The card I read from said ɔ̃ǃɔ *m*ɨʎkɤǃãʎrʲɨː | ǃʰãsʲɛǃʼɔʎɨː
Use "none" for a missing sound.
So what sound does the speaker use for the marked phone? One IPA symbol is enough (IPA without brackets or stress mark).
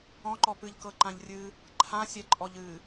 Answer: p